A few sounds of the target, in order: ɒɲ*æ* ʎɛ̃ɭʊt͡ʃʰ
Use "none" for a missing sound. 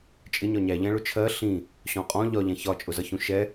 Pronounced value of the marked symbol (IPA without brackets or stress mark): æ